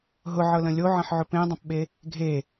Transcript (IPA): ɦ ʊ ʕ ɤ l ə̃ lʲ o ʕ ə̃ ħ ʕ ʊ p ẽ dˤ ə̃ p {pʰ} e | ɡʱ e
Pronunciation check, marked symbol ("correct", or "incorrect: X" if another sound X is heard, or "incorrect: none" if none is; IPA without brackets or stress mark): incorrect: ɓ